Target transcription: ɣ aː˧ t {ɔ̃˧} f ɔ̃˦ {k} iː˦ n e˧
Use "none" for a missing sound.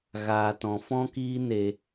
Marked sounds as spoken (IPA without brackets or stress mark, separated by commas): ɔ̃˧, k